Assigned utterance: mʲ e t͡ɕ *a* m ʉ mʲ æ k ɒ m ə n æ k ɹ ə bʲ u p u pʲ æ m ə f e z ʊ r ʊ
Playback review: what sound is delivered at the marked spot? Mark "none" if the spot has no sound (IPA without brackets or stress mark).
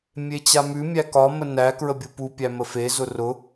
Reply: a